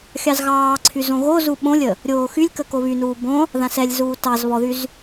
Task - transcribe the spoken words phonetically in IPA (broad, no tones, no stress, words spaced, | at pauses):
xʲɑzɣɑːǀʰy zõɣozu ɓõlʲə | ɾʲoːxylʲkə koβynuː bõ | ðãsɛlʲzuː tɑz βɔðyz